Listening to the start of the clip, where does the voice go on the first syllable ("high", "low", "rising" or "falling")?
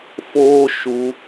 high